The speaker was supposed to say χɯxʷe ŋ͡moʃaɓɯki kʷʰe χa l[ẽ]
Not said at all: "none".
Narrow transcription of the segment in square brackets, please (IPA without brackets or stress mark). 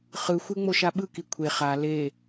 e